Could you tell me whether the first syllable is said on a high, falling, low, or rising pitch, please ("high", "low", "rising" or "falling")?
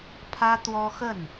high